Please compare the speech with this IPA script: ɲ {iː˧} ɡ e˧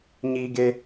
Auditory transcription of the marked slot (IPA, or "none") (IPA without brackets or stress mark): iː˧